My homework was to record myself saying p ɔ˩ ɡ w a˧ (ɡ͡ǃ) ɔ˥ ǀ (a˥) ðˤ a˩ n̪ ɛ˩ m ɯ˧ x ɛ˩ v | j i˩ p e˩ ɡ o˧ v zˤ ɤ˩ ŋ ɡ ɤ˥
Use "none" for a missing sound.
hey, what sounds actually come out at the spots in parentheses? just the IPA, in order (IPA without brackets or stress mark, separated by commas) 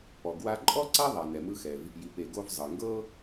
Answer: ǃʼ, a˥